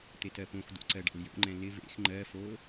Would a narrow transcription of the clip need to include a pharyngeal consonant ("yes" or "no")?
no